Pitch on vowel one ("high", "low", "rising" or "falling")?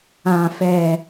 low